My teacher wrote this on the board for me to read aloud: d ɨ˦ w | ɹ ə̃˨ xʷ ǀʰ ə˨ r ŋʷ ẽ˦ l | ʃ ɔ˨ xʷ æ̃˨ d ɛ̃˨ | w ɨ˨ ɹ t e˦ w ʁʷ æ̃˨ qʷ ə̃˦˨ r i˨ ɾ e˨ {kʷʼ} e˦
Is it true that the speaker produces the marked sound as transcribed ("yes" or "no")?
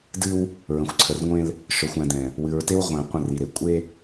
yes